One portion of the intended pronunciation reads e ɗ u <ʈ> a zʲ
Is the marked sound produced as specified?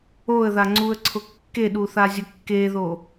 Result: no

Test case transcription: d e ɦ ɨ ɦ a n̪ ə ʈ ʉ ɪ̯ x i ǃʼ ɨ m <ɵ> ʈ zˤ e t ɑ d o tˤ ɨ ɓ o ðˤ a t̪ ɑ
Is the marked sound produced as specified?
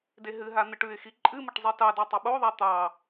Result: no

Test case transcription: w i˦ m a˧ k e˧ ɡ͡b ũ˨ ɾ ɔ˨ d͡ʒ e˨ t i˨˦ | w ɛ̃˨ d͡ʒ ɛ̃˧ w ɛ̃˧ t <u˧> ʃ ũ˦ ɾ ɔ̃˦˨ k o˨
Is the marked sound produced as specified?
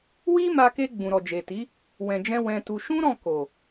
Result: yes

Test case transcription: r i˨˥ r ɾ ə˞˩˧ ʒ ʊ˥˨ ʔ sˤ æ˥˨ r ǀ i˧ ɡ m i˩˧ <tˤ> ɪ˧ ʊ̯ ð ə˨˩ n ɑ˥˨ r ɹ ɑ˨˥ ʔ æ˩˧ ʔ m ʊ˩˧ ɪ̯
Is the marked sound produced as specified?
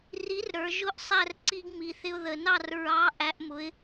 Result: no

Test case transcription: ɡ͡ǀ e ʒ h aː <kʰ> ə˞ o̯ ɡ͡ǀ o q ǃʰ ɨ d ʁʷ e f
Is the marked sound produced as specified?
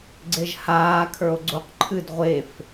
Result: yes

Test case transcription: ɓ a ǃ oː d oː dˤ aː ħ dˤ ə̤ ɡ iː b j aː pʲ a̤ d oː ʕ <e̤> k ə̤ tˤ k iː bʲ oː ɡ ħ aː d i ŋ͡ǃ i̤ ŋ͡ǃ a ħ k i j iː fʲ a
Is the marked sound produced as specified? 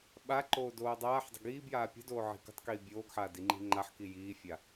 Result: no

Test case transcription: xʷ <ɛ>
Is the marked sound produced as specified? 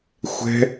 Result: no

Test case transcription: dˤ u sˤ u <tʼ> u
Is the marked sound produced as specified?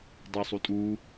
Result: yes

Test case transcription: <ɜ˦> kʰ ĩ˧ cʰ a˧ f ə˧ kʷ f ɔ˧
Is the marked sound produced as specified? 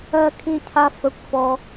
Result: no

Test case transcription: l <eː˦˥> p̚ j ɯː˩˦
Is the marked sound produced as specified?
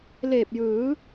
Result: no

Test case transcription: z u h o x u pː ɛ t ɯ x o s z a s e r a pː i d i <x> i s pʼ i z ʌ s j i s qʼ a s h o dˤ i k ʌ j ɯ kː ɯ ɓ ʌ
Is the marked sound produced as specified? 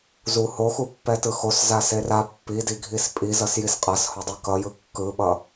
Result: no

